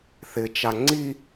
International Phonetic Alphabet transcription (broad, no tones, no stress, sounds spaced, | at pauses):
θ ɪ t͡ʃ a ŋ͡ǀ i